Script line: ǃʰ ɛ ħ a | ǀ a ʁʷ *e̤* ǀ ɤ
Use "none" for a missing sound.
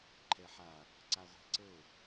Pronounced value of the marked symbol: e̤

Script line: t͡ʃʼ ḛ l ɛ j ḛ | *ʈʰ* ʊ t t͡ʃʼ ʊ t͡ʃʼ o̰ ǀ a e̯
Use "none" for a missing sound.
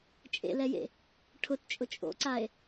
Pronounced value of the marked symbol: ʈʰ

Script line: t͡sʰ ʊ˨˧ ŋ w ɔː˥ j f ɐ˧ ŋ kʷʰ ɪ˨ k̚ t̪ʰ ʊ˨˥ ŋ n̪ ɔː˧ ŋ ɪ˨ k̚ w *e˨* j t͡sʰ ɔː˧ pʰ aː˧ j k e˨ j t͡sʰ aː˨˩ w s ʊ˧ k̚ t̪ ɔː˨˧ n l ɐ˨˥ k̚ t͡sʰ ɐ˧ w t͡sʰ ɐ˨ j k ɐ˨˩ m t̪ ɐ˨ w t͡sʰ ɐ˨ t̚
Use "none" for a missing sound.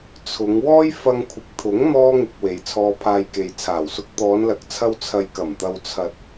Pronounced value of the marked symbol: e˨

